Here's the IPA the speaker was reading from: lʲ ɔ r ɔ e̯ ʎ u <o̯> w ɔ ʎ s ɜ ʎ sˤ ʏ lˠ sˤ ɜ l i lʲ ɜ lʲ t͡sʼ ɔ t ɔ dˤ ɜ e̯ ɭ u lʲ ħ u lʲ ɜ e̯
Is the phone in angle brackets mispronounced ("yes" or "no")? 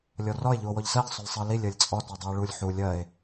no